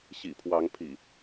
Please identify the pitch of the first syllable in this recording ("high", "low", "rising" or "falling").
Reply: low